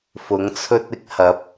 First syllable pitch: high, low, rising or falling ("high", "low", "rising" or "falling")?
rising